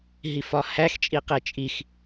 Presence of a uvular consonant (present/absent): present